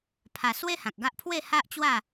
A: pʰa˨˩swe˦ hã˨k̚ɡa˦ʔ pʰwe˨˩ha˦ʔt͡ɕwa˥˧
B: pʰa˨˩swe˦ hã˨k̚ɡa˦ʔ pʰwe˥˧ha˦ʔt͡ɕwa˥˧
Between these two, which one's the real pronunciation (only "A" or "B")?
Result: B